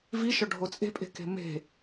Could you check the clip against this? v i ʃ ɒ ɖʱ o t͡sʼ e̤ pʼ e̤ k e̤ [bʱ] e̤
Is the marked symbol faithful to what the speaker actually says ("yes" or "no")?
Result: no